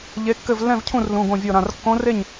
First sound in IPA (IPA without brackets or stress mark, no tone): ʎ